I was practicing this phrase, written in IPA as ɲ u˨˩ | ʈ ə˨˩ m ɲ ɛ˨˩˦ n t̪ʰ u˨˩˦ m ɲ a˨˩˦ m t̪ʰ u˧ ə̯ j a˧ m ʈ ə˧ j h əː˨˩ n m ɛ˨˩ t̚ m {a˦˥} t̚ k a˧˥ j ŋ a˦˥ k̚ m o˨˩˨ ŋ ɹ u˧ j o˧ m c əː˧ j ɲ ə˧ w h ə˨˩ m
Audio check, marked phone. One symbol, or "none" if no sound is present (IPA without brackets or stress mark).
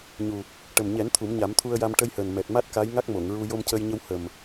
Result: a˦˥